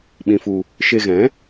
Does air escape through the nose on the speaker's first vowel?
yes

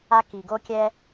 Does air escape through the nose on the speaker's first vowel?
no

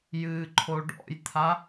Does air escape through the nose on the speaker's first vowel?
no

